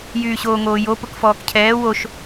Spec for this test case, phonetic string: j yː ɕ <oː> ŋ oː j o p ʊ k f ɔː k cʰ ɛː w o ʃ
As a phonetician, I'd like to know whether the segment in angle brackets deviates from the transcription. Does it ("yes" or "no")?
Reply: no